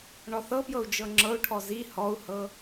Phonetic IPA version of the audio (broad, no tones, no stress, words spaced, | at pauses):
ɳɔθɤpjɤu̯ d͡ʒɤŋ͡ǁɤu̯ʈʰɔ zi hɔu̯hɤ